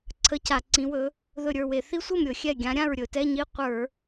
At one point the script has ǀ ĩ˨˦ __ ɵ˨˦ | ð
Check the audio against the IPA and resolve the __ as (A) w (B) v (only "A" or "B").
A